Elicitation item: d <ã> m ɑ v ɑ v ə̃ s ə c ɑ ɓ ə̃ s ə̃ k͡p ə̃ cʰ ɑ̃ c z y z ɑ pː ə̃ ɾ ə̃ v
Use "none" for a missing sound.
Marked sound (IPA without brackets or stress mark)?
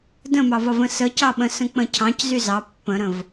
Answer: ə̃